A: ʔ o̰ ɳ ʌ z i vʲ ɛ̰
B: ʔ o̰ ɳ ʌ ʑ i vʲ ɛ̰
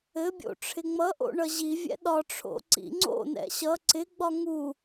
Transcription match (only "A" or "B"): B